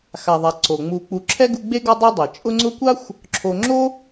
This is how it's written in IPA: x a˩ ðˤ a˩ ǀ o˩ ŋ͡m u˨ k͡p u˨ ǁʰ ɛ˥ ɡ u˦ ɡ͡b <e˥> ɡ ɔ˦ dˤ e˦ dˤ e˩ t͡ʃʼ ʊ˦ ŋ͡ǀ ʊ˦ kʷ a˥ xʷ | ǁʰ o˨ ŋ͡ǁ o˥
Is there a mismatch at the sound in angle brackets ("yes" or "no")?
no